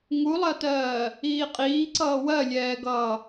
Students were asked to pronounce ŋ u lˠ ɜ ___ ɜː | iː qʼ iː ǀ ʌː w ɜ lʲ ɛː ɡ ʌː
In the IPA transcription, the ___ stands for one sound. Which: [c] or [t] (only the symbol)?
t